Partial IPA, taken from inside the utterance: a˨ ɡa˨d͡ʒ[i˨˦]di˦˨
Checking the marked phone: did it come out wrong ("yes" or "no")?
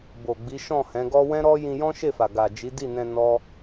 no